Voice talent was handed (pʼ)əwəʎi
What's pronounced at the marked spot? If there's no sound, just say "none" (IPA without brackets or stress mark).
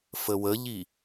f